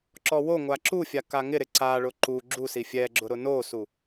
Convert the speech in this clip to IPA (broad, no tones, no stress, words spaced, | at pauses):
ǁɔwoŋʷa ǁufʲa kaŋɪɾɪ ǀaɭʊ ǃu ɡ͡ǁusi fʲɛɡ͡ǁʊ ɾʊnosu